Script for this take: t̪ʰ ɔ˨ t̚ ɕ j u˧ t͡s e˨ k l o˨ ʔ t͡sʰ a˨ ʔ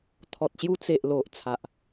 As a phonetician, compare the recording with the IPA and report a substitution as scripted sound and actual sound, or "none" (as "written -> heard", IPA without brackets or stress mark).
k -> ʔ